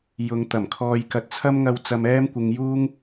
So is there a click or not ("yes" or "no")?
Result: no